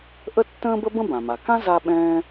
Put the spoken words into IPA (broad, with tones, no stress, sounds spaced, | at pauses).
ʔ ə˥ tː ə̃ː˥ b ə˥ b ə̃˥ b ã˩ m a˩ k ã˥ z a˥ ɓ ɛ̃ː˥